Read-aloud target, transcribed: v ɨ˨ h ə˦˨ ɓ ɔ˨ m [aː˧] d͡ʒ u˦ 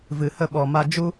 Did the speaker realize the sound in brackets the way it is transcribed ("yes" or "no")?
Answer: no